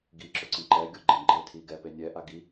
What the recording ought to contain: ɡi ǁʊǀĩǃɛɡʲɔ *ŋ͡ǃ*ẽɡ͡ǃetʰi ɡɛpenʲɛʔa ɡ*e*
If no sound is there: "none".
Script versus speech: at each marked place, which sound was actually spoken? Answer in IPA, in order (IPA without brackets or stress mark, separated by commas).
ɡ͡ǃ, i